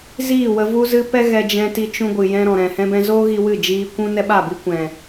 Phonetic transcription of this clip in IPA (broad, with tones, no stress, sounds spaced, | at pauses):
z iː˦˨ w ə˧ v u˧ z ɨ˧ p ɛ˦ ɣ ɛ˧ d͡ʒ ɛ̃˧ t i˧ t͡ʃ ũ˧ ɡʷ ɨ˨ j ɛ̃˧ ɾ ɔ̃˨ ɾ ɛ̃˨ h ɛ̃˧ b ɛ̃˧ z oː˦ ɣ i˦ w ɨ˦˨ d͡ʒ iː˧ kʷ ũ˦ n ɛ˦ ɓ a˦˨ b i˦ kʷ ɛ̃˨